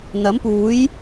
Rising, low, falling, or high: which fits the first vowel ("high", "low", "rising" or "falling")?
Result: rising